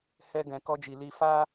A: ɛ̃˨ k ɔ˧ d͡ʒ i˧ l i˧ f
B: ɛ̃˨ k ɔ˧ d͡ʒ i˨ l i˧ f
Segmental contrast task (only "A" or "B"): B